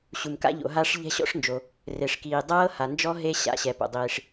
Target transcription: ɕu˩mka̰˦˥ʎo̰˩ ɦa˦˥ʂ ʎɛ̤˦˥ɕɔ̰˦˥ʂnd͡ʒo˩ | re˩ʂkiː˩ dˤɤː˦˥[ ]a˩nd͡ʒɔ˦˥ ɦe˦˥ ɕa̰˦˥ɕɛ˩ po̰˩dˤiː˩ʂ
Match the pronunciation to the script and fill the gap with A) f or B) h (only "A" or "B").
B